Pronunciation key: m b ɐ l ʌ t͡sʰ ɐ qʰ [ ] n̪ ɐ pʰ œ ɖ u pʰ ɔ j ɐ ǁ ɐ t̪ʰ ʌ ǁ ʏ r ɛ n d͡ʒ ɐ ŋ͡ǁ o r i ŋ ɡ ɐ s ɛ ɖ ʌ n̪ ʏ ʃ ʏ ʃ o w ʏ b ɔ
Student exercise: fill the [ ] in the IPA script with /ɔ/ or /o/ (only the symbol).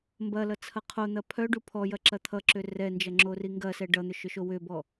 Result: o